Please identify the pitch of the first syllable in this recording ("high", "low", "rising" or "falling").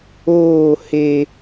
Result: falling